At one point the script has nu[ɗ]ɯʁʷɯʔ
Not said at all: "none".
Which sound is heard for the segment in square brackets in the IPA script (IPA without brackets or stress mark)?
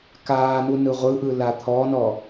n